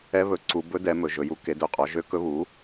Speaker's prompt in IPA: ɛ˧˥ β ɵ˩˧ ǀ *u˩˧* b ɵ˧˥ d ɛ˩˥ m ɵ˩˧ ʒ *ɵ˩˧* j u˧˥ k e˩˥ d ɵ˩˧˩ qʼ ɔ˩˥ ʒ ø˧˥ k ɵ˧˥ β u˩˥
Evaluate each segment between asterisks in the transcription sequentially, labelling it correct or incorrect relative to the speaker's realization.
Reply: correct, correct

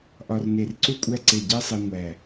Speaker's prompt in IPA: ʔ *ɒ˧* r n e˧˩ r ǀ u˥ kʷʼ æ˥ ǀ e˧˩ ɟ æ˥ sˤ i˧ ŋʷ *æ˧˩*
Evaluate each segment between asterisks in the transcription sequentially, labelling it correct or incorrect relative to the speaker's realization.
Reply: correct, correct

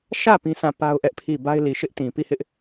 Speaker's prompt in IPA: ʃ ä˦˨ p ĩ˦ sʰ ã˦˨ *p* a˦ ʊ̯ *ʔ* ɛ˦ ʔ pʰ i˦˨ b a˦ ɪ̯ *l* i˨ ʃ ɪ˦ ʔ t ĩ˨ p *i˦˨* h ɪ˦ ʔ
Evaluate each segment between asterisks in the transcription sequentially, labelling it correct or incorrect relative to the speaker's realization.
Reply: correct, correct, correct, correct

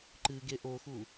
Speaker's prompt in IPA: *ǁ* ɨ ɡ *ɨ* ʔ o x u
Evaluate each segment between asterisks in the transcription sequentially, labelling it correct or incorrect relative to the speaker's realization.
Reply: incorrect: ǃ, incorrect: e

